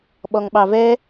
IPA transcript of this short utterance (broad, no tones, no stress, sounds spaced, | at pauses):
ɓ ɔ ŋ ɓ ɑ v ɛ